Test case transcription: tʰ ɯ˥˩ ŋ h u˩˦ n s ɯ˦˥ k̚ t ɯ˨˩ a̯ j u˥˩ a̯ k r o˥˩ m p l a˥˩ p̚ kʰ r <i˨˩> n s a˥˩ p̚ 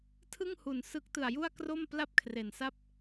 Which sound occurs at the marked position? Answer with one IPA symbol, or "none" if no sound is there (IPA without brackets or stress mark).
e˨˩